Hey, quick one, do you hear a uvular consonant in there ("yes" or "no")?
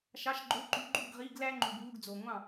yes